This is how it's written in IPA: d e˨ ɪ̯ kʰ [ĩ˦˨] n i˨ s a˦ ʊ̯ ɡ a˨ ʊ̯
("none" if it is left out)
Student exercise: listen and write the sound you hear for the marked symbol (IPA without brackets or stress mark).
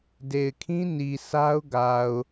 ĩ˦